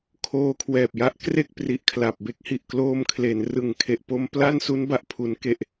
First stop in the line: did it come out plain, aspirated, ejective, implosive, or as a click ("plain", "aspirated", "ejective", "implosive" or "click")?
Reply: aspirated